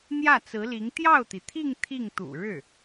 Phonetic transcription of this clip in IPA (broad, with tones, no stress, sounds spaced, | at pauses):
n̪ j ä˥˩ t͡s ɹ̩˧˥ l i˧˥ ŋ t̪ j ɑ˥˩ ʊ̯ t̪ i˩ t̪ʰ i˥˧ ŋ t̪ʰ i˥˩ ŋ t̪ ṵ˨˩ ɻ ɻ̩˥˩